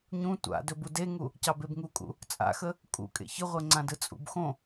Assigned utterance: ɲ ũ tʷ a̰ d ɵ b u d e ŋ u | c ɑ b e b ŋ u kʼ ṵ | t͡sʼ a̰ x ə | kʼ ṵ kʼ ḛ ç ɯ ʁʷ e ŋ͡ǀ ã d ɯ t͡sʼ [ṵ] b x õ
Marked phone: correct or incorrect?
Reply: correct